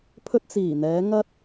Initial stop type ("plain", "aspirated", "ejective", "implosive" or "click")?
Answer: aspirated